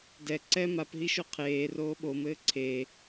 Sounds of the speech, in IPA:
dɛ ǀɛ mapɦiʃo qʰeː roːɓomɘː ǀʰe

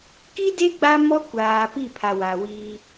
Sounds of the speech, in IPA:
ki˦de˦ ɡ͡ba˦mɔ˦kʷaː˨ pi˦˨pʰa˨wa˨wiː˦

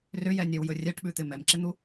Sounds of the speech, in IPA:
rʏjɛnʲɛwjɵ rʲɛʈɓʉt̪ɪ mɛmǁɪn̪u

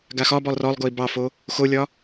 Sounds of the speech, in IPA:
ɡaxɒbɔlˠ rɔlˠɡoi̯ bɑfo | xolʲɒ

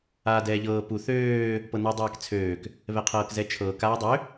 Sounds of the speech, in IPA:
aːdɛːʎɤː pu θøː | pɤnødˤaːkt͡sʰøːk | βɛqʰɤːkzɛt͡ʃʰɤːk aːdˤø

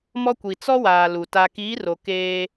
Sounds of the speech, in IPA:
mɔ˦kʷi˨ t͡sɔ˦waː˨ lu˨ ta˨kiː˨˦ro˨ keː˦

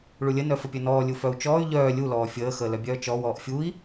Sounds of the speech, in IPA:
ɭulʲə nœfəpʲœnɔː lʲufœu̯t͡ʃɔːy̯ ʎœː lʲu lɔːfʲəː xəːlœbʲœːt͡ʃɔ wɔːʔfʲui̯

